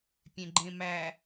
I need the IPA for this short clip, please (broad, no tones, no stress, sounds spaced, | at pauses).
pʲ ẽ ɡ͡ǃ ẽ m æ